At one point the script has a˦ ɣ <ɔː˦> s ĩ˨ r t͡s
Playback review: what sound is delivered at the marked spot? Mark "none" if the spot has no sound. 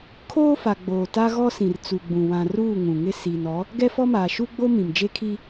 ɔ˦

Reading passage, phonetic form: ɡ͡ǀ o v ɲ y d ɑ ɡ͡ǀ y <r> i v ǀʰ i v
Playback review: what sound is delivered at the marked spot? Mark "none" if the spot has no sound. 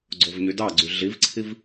ɮ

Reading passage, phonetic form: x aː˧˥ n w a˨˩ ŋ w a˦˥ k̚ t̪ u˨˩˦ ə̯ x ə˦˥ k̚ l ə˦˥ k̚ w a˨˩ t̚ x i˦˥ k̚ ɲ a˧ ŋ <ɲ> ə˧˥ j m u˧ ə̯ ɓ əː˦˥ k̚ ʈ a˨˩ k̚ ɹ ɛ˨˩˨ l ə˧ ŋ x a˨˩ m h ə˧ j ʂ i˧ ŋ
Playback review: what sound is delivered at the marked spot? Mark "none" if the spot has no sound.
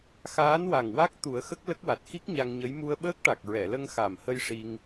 ɲ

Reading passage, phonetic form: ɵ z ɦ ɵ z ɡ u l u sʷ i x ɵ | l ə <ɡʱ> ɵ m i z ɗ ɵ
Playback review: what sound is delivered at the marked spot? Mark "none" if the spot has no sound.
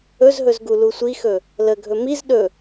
ɡʱ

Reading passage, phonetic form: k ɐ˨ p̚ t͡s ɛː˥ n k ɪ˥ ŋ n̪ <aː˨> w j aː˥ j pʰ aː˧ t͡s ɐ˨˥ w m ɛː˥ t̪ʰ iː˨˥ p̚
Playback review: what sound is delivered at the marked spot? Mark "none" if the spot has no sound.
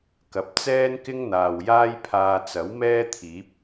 aː˨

